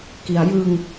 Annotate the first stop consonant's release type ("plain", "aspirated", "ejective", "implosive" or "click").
plain